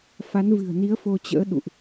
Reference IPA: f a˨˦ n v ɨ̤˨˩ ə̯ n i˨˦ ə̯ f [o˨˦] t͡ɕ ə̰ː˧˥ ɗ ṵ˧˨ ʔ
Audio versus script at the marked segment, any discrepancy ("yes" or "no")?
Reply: yes